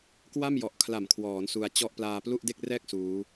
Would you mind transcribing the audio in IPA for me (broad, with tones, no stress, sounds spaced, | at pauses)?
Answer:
k w a˥˩ m j ɔ˨˩ ʔ kʰ l a˨˩ m kʰ w ɔː˩˦ n s u˧ a̯ t͡ɕ ɔ˥˩ ʔ p l aː˧ p l u˥˩ ʔ d e˥˩ k̚ r ɛː˥˩ k̚ s uː˦˥